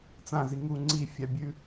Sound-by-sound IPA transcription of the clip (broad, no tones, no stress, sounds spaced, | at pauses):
t͡s ã z i ŋ u ŋ͡ǀ i fʲ a bʲ ʉ